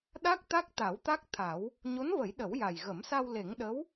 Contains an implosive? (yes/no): yes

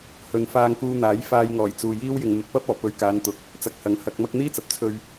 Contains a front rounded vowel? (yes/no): no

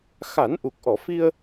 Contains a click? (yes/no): no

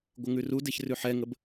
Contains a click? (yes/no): no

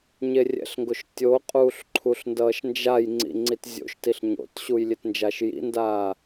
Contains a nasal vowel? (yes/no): no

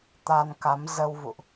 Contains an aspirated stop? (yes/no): no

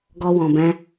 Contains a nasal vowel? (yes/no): yes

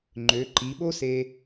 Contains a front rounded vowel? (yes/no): yes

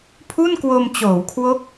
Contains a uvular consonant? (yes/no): no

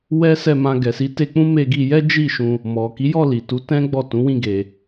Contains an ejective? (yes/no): no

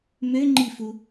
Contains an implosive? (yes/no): no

